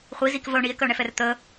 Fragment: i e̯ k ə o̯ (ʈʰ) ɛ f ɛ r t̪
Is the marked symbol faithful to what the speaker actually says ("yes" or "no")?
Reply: no